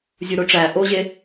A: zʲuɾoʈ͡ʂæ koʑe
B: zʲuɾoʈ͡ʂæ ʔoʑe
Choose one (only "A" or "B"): B